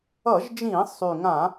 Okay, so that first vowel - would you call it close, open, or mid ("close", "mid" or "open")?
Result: mid